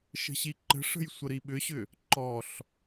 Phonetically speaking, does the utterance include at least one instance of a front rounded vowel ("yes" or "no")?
yes